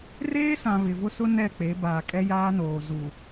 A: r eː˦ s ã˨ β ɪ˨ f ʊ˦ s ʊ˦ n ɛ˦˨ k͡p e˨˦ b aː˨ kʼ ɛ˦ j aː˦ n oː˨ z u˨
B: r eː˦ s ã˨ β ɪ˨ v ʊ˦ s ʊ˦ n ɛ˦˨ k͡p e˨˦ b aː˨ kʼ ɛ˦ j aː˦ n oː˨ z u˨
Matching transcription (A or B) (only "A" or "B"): B